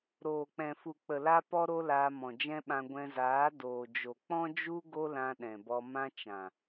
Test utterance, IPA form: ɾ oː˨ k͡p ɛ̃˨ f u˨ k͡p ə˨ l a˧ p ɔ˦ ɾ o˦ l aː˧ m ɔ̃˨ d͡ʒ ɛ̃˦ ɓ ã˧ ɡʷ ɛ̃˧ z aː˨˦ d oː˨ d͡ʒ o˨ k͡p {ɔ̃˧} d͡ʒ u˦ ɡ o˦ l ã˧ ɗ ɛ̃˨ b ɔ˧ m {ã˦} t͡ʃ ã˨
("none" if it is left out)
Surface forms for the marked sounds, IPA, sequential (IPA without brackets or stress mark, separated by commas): ɔ̃˦, ã˦